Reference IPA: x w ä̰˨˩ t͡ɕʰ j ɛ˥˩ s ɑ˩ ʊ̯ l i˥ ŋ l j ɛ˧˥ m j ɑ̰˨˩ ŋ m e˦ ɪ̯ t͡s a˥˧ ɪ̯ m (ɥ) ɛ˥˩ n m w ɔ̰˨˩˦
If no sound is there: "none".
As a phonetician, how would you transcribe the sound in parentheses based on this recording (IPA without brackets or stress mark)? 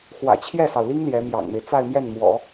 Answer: j